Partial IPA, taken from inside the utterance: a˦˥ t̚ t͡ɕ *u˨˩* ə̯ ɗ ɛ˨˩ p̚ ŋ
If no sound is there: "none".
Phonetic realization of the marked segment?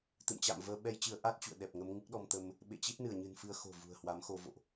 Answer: ṵ˧˨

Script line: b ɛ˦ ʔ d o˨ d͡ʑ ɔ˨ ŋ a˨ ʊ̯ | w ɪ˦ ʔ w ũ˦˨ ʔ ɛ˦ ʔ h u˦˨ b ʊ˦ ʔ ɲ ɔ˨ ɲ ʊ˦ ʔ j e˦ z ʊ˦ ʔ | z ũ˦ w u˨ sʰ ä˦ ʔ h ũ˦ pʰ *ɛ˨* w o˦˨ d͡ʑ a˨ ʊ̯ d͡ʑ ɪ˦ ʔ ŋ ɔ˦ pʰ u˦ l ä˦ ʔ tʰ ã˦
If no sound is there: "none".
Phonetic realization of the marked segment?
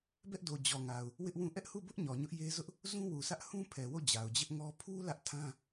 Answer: ɛ˨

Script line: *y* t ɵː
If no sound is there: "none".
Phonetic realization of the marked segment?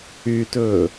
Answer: y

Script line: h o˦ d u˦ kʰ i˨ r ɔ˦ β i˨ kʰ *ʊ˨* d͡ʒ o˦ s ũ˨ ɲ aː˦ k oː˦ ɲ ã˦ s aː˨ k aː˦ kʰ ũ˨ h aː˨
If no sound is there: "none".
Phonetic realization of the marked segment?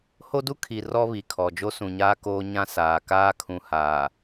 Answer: ɔ˨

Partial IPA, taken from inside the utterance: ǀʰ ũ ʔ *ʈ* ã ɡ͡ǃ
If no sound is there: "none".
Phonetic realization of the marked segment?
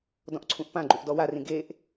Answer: p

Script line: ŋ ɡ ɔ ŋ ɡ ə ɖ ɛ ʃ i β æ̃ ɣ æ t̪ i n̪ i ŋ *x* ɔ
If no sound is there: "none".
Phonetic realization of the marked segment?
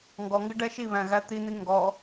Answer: ɡ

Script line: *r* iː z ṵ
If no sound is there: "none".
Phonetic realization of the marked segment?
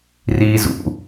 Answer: r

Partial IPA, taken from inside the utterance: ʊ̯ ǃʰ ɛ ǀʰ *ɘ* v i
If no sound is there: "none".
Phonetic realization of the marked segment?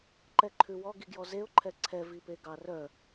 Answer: ɛ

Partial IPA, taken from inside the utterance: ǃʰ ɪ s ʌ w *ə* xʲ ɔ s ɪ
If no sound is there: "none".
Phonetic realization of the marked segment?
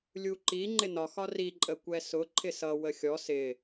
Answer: ə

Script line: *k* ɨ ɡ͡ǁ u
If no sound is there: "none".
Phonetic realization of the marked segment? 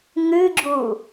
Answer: ŋ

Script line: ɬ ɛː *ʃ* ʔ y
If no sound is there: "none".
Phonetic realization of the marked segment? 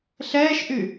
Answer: ʃ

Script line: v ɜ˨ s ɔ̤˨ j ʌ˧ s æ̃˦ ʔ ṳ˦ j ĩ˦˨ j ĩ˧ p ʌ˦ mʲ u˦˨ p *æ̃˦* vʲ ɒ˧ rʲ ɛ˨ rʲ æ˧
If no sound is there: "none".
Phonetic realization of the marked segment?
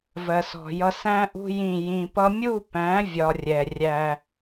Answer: æ̃˨˦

